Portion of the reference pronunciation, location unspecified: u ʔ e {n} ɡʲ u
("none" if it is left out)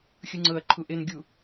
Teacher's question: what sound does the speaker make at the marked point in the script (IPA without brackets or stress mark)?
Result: n